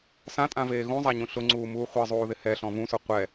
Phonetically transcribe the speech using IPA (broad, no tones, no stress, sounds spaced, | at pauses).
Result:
s ã tʼ ã v eː ɣ ũ zˤ a ɲ ũ ɬ ʊ ŋ͡ǀ uː m uː χʷ ɛ zˤ uː ð ɪ h ɛ ɬ ɔ̃ v ũ s ʊ qʷ ɛ